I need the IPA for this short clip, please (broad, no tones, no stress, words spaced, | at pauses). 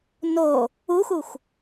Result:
no | uxuxʷ